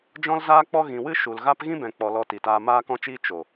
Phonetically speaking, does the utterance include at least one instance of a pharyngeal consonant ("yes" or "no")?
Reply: no